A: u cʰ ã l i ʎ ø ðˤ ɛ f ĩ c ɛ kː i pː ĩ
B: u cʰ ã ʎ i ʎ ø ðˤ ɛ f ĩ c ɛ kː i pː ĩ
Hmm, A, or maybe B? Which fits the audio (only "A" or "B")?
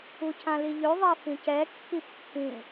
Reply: A